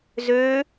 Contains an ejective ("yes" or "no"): no